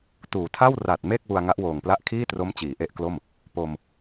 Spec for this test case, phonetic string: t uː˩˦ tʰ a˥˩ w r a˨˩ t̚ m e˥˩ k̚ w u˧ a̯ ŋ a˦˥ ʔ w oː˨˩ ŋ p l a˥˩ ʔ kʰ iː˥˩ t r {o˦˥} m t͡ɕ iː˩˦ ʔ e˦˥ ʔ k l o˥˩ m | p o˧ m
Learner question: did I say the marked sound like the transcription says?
yes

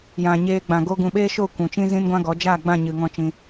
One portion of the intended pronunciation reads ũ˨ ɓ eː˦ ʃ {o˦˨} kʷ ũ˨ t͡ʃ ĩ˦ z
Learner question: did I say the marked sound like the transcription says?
yes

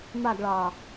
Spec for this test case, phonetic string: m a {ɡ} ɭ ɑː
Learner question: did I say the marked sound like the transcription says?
yes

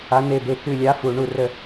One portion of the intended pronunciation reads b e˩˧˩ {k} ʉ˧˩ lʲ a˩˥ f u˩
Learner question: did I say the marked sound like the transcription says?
yes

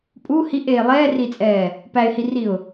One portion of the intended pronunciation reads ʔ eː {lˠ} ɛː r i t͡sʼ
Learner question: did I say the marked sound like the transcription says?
yes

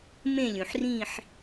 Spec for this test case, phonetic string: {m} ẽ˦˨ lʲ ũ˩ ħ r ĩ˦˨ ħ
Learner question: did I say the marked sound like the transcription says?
yes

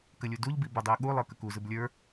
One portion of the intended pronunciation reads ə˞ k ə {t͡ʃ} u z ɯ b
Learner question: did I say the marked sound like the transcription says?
no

